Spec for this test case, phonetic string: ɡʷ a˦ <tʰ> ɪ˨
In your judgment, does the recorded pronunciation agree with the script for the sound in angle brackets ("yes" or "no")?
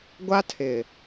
yes